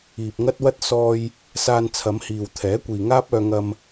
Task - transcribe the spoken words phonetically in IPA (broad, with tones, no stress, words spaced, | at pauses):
iː˨p̚ŋɐ˥t̚ wɐ˥t̚ sɔː˧j | saː˧nt͡sʰɐ˨˧mhiː˨wt̪ʰɛː˨˥ kʷiː˨ŋaː˥p̚œː˧ ŋɐ˧m